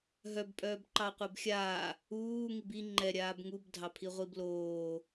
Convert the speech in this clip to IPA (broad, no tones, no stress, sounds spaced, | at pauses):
ɦ œ b pʼ œː b ǃ ɑ qʷ ɛ b xʲ aː | uː ŋ i b i ŋ͡ǃ ɛ ɾʲ aː b ŋ u b dʱ ɑ pʰ i ʁʷ i b l oː